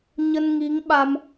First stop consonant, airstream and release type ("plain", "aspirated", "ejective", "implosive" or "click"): implosive